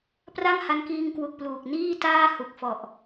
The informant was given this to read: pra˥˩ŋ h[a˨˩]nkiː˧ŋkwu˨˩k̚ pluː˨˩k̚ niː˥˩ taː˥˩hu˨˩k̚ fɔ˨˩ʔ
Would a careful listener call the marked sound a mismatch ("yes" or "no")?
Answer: yes